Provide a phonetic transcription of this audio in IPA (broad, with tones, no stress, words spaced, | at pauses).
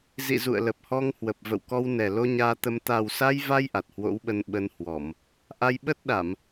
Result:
zḭ˧˨ zṵ˧˨ə̯lə˨˩p̚hɔ˧ŋhwə˨˩p̚ və̰˧˨wkɔ˧w nɛ˨˩ lo˧ ɲaː˧t̪ə˧m t̪a˨˩wsa˧jva˧j ʔa˨˩t̚hwo̰˧˥wɓə˧n ɓə˧nhwɔ˧˩˨m | ʔa˧jɓə˦˥t̚ɗa˧˩˨m